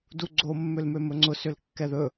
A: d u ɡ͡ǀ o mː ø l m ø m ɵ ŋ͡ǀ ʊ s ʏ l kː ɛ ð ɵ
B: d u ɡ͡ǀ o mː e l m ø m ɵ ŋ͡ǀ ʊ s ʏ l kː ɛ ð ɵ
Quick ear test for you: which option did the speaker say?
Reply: A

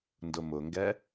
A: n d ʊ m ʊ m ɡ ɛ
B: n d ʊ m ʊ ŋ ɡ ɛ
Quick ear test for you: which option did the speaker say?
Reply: B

